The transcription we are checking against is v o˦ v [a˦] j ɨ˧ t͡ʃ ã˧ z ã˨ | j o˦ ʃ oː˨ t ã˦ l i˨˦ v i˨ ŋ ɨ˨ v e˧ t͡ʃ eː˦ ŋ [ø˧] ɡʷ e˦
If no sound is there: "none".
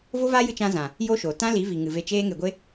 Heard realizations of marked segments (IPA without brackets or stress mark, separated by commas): a˦, e˧